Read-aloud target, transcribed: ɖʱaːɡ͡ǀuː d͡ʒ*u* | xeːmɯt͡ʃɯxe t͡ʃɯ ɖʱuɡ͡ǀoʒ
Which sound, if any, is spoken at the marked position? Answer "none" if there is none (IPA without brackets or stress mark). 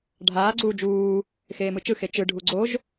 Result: uː